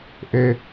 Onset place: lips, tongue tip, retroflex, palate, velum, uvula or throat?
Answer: throat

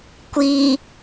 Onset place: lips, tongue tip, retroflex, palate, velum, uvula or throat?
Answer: velum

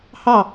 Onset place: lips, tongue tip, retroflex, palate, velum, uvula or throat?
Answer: throat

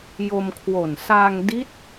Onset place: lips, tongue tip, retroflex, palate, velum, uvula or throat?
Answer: palate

